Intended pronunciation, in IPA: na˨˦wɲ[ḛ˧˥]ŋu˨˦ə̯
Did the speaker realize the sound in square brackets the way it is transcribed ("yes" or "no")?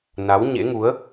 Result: yes